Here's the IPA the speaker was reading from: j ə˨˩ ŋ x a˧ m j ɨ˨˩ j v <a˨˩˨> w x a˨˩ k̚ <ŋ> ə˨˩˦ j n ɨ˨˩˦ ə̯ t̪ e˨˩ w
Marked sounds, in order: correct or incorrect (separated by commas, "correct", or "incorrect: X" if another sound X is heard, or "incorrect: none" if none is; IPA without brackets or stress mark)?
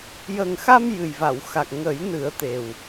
correct, correct